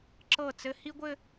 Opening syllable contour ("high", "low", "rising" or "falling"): falling